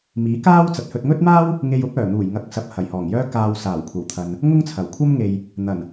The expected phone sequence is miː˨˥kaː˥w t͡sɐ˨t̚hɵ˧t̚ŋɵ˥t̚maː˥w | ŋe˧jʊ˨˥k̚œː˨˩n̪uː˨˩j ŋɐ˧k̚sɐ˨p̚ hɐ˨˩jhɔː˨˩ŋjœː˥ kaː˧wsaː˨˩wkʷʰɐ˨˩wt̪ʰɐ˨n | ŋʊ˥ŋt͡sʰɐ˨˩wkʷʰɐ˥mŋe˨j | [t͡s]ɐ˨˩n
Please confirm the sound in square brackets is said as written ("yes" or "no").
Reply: no